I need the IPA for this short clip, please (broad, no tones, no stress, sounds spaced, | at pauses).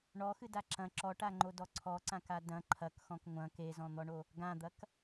ɳ ɔ x ɨ d a ǁ ɐ̃ ǁ ɔ ʈ a ŋ͡ǃ o d ɔ ǀʰ ɔ ǀ ã k a d ɐ̃ ǃʰ ɐ k x ɔ̃ k ŋʷ ɐ̃ k e z ɔ̃ n̪ ɔ ɳ o | ɡ ã d̪ ɐ k